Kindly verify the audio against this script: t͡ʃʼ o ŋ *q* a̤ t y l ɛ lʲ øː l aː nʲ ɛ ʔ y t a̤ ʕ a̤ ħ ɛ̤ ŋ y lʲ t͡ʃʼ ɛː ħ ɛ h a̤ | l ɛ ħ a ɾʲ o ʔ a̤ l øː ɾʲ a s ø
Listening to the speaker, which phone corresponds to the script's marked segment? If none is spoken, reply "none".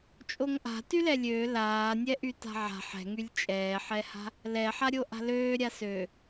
ʔ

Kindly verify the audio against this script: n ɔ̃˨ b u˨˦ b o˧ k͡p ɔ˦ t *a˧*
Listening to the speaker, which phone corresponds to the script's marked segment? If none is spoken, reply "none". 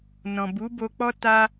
a˦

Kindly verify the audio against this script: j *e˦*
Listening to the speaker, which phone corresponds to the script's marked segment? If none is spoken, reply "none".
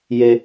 e˦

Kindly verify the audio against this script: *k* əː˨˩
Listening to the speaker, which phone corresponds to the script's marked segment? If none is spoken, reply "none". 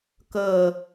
k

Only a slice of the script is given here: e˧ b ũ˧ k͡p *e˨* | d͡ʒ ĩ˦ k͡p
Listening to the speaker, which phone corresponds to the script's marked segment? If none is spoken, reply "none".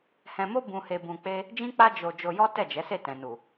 e˦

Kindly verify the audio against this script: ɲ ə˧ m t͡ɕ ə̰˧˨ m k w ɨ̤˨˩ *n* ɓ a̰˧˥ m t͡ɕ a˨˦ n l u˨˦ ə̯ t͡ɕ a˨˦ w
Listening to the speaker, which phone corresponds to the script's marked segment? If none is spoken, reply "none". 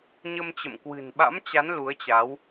n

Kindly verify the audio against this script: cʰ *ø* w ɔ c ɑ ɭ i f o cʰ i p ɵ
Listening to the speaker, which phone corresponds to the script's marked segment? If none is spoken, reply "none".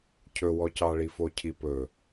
ɵ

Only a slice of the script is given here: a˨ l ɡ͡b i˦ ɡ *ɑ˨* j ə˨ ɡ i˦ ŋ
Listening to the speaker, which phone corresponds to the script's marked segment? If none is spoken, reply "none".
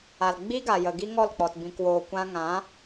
a˨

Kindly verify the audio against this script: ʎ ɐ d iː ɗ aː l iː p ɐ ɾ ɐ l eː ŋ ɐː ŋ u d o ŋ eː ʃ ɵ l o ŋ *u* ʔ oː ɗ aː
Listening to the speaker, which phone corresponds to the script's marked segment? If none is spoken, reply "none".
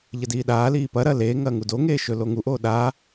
u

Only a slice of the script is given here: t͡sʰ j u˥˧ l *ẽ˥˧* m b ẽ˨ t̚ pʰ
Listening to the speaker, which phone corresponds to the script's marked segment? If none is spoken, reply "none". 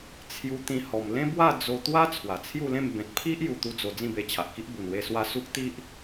ẽ˥˧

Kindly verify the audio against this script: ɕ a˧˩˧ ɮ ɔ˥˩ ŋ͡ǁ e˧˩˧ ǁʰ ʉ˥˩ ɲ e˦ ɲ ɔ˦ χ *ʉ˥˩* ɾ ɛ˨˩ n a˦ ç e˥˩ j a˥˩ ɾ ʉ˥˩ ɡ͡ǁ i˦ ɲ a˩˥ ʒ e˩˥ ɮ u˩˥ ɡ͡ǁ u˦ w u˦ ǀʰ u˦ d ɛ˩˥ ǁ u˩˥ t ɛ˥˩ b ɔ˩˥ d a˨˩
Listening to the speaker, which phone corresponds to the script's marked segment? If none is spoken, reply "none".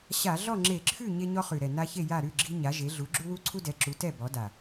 ʉ˨˩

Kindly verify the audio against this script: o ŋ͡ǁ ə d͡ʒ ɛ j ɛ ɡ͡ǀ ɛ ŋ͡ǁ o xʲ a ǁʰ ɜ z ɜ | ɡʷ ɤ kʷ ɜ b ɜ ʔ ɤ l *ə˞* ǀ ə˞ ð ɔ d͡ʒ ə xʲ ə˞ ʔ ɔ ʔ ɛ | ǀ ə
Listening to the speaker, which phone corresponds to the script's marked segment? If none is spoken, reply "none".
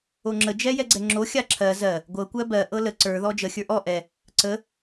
ə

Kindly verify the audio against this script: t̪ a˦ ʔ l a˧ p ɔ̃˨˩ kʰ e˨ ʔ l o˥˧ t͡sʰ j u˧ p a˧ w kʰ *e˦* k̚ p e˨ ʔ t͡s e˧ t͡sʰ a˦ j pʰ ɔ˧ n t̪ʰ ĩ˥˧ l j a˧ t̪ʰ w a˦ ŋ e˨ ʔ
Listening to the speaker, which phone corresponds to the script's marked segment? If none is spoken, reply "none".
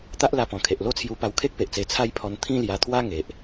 e˦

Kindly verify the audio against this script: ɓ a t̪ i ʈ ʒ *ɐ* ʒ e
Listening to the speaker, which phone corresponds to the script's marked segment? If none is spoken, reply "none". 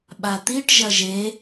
ɐ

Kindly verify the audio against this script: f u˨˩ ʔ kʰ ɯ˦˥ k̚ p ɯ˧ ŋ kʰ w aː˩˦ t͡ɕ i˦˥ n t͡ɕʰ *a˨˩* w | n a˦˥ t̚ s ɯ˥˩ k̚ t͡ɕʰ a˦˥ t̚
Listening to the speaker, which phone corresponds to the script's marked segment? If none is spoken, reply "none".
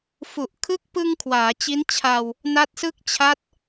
a˧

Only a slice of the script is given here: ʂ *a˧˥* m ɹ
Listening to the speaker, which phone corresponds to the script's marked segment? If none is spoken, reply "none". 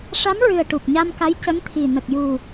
a˧˥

